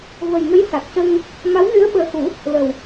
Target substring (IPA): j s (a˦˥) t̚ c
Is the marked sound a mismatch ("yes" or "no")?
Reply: yes